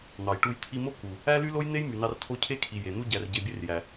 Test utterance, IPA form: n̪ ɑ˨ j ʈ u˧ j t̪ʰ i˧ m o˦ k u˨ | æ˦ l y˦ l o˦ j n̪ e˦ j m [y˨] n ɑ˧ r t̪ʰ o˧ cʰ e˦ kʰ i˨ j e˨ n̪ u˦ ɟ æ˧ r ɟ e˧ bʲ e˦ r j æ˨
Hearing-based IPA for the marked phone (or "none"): y˨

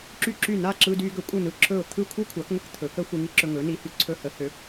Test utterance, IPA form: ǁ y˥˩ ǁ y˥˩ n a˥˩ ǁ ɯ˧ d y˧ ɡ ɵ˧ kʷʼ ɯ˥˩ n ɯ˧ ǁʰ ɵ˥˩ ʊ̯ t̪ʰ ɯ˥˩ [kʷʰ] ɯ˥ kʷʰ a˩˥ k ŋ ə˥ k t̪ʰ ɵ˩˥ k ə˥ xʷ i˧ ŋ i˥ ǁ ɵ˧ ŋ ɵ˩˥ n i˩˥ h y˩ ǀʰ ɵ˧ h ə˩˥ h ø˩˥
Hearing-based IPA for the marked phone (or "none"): kʷʰ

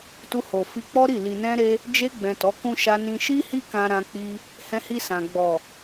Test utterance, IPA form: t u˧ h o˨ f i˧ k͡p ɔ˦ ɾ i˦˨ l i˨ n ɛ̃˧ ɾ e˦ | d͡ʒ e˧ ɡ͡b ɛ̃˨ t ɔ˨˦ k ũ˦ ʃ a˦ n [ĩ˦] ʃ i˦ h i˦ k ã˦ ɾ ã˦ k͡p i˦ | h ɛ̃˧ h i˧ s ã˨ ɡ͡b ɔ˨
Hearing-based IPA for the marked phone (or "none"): ĩ˦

